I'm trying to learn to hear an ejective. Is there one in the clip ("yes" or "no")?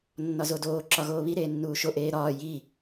no